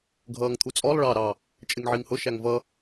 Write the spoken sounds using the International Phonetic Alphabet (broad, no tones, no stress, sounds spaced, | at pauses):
ɡʱ ʌː ŋ t̪ʰ u t͡sʼ ɔ lˠ ɭ ɑ ɾ ɑ | t͡ʃʼ ɪ ŋ ʕ i ŋ h ʊ ʃ æ ŋ v ʌ